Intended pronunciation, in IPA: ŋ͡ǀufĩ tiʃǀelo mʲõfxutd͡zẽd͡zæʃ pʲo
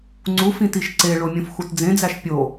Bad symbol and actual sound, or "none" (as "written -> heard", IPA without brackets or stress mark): l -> ɭ